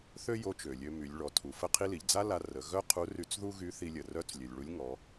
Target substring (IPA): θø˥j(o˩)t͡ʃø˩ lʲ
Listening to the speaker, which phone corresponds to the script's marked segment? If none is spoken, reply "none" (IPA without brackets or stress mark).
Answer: o˧˥